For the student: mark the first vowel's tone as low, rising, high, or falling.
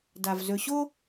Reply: low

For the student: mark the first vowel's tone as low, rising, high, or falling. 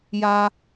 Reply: high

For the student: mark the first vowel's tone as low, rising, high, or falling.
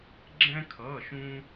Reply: high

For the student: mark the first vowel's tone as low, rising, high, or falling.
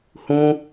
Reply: high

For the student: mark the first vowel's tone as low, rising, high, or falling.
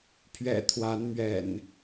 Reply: low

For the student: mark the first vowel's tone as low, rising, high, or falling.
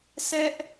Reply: high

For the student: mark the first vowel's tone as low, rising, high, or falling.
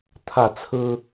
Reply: falling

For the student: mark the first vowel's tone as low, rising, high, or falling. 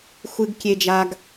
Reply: high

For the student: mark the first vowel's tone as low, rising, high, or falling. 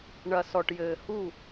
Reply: low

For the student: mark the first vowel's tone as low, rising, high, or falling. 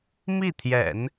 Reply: falling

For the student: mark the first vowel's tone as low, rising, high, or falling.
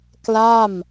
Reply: falling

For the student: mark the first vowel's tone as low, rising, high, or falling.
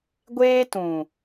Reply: high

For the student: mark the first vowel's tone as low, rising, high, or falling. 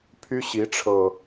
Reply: high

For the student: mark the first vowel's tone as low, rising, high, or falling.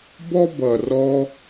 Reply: high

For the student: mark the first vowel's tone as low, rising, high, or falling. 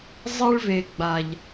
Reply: high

